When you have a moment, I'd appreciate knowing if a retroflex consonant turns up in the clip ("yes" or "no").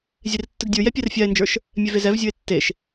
no